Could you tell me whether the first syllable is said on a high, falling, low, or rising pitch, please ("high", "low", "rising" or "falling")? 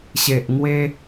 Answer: low